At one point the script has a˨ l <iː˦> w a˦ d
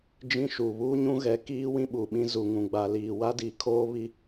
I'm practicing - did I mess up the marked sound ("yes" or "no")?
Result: yes